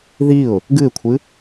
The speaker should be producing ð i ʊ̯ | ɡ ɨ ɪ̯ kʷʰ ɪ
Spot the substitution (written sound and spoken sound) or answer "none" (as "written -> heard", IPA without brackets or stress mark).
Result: ɪ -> ɨ